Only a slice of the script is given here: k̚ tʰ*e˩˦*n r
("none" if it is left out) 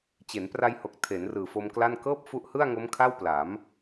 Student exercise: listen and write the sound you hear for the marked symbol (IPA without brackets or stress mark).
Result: e˩˦